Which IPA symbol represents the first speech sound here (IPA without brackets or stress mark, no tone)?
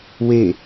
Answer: w